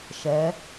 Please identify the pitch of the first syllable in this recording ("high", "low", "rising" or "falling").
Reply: rising